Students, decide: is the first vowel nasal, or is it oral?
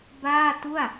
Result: oral